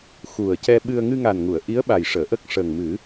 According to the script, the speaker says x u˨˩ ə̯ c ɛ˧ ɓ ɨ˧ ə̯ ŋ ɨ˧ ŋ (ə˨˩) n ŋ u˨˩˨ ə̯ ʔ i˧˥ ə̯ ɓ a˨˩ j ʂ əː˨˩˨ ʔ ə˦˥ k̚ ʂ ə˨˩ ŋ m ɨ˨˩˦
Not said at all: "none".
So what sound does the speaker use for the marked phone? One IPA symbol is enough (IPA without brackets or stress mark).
a˨˩